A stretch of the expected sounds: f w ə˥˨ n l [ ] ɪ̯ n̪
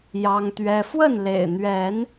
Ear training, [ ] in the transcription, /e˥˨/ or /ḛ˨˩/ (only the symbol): ḛ˨˩